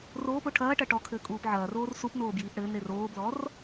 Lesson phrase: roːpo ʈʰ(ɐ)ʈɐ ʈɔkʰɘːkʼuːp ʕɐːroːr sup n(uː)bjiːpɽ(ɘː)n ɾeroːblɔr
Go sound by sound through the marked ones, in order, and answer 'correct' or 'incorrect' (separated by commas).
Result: incorrect, incorrect, correct